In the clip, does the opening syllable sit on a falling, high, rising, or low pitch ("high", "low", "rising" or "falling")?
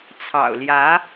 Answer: low